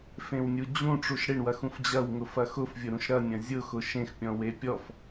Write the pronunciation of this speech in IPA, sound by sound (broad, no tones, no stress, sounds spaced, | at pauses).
f ẽ w nʲ u d͡ʑ ũ ʈ͡ʂ u ʃ ɽ ɪ ɳ w ɐ x ũ f d͡ʑ ɐ w ŋ ʊ f ɐ x ʊ f vʲ ʊ ɾ ũ ʃ ɾ ɐ nʲ ɐ̃ zʲ ʊ x ʊ ʃ ẽ x pʲ ɔ̃ w e pʲ ɔ f